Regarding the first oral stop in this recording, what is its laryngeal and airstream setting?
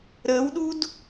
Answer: implosive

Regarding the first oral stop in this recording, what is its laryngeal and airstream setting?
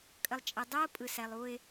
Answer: ejective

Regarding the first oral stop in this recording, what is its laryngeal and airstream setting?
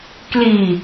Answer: plain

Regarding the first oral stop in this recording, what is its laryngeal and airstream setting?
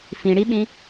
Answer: implosive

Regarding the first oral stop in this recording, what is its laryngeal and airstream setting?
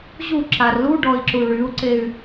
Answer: click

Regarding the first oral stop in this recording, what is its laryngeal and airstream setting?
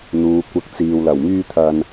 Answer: plain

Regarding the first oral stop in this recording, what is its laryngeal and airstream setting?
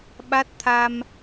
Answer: implosive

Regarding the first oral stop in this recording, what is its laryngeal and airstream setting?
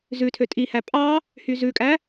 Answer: aspirated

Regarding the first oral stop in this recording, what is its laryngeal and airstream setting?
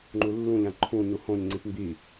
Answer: click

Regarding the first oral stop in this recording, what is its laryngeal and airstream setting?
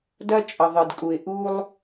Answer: plain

